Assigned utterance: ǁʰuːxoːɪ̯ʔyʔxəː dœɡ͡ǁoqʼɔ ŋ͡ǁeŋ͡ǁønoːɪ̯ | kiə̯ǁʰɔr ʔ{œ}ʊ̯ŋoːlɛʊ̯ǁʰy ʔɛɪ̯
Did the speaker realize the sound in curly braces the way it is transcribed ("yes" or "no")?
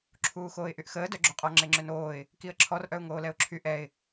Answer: yes